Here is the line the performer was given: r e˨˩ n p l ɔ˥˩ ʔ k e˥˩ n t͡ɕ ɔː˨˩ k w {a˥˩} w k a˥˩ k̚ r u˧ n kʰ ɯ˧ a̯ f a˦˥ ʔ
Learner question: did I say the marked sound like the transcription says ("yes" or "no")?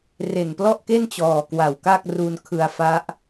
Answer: no